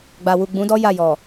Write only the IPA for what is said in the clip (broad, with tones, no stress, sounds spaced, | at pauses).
ɡ͡b a˨ w u˨ ɡ͡b ũ˨˦ d ɔ˦ j a˦˨ j ɔ˨